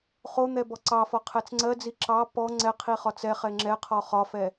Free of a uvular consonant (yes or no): no